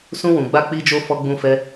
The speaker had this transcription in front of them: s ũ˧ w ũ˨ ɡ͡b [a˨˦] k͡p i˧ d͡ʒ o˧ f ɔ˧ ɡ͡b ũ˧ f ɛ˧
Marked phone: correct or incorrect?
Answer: incorrect